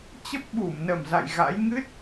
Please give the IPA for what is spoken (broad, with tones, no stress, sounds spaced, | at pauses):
t͡ɕ ə˦˥ p̚ ɓ u˧˩ m n ə˨˩ m z a̰˧˨ j ɣ a̰˧˥ j ŋ ɨ˦˥ t̚